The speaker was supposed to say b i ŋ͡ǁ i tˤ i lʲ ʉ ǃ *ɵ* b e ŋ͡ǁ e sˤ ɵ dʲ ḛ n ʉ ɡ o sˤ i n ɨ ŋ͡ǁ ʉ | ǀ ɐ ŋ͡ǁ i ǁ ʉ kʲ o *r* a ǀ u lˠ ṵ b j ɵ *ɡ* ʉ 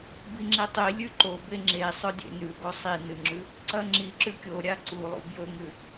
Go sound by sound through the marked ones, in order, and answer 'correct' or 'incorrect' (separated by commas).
incorrect, incorrect, incorrect